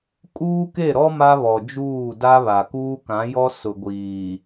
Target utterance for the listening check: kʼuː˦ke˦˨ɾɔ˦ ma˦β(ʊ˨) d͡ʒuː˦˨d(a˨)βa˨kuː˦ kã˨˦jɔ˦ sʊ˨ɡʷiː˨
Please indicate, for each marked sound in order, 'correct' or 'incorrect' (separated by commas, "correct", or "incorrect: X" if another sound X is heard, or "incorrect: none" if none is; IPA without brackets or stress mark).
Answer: incorrect: ɔ˨, incorrect: a˦